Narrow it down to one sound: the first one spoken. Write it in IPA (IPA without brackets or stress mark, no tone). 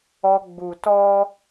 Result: ɔ